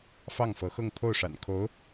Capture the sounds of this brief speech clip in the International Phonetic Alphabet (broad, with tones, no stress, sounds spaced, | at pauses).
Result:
f ɑ˥˩ ŋ f ɤ˧˥ x ɤ˥˧ ŋ pʰ o˥˩ ʊ̯ ʂ a̰˨˩ n kʰ o˧˥ ʊ̯